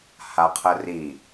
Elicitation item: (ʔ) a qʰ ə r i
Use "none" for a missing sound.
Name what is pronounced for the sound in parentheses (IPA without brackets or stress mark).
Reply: h